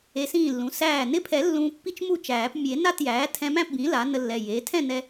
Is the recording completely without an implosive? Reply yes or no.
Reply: yes